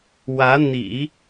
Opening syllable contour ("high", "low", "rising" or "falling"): rising